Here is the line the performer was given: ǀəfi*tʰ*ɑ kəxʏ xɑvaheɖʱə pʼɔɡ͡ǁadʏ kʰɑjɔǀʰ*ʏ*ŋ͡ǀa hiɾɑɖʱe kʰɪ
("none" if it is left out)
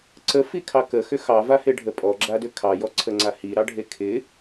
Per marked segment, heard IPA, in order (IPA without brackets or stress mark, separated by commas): kʰ, ə